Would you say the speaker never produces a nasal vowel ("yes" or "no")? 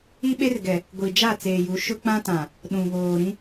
no